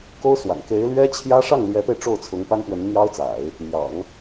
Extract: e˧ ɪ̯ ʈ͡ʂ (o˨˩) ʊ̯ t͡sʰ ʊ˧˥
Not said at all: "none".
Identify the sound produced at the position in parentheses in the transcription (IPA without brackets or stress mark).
o˥˩